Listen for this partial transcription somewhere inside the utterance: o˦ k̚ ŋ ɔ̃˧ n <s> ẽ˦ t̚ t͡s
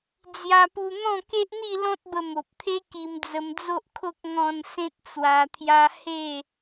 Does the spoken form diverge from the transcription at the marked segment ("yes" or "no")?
no